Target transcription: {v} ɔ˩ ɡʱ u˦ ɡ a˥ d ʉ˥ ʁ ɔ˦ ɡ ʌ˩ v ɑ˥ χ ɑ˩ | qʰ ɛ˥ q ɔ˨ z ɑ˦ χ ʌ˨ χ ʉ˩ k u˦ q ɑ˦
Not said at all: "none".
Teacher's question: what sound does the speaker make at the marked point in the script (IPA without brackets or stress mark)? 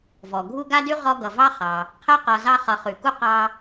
v